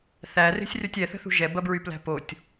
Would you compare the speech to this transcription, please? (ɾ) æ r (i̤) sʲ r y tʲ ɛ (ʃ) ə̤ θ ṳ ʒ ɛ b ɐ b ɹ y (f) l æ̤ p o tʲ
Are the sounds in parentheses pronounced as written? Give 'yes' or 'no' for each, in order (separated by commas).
no, no, no, no